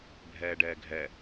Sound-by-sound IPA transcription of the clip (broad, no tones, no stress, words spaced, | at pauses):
bʱɛːɖɛːɡʱɛ